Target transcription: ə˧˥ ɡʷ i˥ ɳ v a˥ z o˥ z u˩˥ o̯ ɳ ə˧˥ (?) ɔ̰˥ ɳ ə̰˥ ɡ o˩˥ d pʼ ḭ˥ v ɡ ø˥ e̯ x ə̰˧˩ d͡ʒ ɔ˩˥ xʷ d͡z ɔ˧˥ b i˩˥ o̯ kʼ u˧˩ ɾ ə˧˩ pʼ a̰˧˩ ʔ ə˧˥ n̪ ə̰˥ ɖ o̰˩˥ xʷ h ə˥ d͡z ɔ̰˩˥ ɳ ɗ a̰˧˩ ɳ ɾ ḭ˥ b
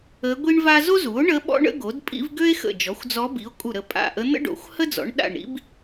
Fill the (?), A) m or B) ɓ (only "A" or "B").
B